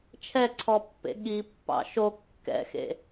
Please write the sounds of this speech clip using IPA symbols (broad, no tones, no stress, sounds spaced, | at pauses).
t͡ʃʰ ɛ ǀʰ ɔ pː ḛ ɠ i pː ɑ̰ ʃ o kː ɛ̰ x ḛ